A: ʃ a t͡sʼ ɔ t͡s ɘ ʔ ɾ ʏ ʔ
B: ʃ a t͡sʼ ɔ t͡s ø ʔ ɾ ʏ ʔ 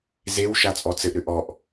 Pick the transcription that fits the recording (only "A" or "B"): A